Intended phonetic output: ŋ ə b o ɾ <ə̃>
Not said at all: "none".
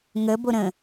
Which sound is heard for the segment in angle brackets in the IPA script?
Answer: ə̃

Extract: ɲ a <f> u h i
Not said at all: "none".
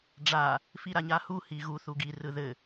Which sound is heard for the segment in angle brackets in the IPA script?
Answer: h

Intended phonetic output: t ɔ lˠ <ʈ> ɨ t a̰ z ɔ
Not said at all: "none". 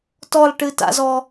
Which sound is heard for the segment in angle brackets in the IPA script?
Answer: ʈ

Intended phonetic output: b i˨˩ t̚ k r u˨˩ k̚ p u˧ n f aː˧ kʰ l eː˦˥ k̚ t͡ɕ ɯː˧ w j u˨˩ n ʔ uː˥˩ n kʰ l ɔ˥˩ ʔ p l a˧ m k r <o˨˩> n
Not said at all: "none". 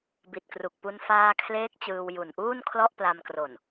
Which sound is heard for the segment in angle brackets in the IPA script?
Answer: o˨˩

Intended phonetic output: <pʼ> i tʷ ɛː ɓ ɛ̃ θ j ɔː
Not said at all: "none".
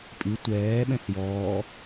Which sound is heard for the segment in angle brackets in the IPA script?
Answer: pʼ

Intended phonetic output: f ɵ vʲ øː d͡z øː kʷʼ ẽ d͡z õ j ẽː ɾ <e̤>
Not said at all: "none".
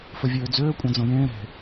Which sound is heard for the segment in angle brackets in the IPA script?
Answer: e̤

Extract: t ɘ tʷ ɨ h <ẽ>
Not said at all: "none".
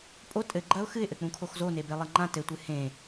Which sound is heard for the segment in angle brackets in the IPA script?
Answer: ẽ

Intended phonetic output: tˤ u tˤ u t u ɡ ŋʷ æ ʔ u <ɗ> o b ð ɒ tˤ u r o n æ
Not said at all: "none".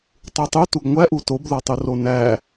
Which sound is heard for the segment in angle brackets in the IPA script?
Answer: t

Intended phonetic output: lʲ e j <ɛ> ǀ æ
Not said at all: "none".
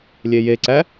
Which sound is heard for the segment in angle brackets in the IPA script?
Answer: e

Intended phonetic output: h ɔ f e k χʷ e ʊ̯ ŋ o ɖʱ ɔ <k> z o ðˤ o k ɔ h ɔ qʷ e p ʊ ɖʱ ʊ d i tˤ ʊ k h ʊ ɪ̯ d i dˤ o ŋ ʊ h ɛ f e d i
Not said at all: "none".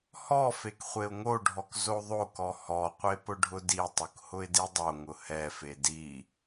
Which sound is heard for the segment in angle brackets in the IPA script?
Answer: k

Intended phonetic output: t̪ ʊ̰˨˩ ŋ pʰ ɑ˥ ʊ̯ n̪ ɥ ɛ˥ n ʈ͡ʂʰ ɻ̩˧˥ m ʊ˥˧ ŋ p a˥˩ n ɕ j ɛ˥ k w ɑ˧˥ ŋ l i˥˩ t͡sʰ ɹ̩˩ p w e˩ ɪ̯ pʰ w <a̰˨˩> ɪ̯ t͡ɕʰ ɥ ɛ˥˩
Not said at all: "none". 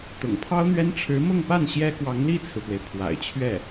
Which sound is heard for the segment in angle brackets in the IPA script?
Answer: a̰˨˩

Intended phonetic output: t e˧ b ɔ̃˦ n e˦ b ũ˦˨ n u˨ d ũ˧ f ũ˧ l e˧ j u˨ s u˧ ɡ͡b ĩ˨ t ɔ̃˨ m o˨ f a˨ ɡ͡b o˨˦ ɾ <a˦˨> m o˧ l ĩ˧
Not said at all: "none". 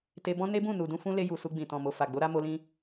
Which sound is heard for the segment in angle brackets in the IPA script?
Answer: a˦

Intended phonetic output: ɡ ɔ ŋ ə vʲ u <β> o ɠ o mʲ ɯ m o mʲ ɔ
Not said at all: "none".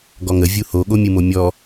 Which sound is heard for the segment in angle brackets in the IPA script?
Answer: h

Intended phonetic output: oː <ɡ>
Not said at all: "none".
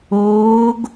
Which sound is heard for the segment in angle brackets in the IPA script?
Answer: ɡ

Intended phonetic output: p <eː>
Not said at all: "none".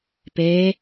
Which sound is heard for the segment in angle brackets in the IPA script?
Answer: eː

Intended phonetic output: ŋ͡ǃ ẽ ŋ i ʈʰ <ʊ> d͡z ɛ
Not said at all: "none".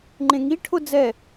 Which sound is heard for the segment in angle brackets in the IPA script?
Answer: ʊ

